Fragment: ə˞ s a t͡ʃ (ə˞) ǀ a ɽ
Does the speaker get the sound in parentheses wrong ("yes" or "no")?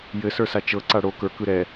yes